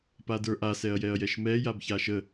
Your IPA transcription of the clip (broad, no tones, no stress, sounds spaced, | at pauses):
p a d ə˞ ʔ a s ɛ ɐ̯ j ɛ ɐ̯ j ɛ ʃ m ɛ j a b ç a ʃ ə